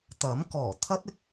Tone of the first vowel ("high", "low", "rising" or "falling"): rising